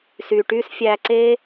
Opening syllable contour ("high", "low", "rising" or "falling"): low